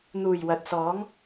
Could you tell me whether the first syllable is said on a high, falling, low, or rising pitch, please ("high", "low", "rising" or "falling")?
low